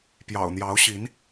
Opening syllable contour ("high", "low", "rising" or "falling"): low